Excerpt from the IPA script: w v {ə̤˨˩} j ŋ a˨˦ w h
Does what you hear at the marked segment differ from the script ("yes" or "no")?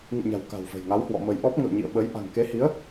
no